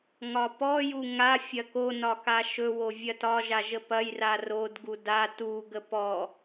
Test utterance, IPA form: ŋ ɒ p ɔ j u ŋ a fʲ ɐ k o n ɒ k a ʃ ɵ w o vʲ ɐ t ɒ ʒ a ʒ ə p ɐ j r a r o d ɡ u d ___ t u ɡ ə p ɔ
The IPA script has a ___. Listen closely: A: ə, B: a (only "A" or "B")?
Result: B